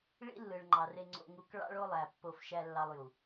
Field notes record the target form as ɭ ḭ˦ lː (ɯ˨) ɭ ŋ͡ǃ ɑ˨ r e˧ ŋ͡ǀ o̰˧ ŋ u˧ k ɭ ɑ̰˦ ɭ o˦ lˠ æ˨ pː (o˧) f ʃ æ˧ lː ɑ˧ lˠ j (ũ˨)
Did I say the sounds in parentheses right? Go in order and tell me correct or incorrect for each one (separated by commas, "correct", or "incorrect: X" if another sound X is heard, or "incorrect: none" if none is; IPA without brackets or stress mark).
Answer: correct, correct, incorrect: u˨